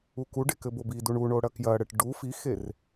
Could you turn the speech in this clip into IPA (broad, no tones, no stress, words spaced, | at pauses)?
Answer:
ukuɖe kɘbobiduɳ uɳo ɽɐkjɐɽɘʈ ɖu fixer